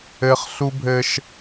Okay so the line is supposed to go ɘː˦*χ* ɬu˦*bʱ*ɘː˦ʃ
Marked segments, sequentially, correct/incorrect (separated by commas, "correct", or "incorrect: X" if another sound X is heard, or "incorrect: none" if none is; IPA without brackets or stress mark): correct, correct